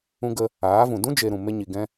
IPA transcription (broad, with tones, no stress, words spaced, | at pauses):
ũ˧ɡə˧ | aː˨˦vũ˨ dũ˦d͡ʒe˨ ɾũ˨ me˧ɲi˨ ɡɛ̃˧